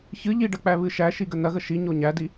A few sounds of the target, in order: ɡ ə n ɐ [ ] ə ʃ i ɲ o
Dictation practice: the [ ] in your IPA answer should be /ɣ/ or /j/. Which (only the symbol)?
ɣ